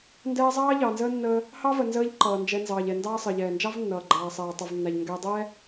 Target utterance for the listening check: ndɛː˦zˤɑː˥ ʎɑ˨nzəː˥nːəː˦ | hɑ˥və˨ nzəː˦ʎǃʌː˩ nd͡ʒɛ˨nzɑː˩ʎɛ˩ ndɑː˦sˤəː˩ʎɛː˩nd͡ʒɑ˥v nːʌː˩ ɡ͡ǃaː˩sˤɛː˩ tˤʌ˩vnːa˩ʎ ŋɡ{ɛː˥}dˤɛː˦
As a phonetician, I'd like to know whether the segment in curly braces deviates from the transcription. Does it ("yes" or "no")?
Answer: yes